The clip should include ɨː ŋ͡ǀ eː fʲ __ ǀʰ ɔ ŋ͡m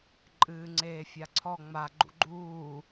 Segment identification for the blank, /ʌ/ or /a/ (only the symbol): a